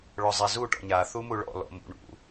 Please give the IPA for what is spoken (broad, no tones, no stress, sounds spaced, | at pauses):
ɭ ɔ zˤ ɛ z u ʈ ɔ̰ ɲ a θ u m u ɭ ɔ̰ l ɔ̰ m ṵ ɳ ṵ